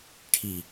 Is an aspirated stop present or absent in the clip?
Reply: present